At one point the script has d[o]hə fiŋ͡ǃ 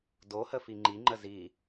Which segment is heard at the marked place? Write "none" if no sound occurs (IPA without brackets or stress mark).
o